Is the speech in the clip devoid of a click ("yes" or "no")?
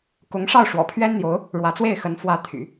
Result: yes